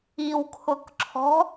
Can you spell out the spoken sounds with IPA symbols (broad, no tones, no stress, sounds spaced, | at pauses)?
i w kʰ ʊ k ǁʰ ɔ̤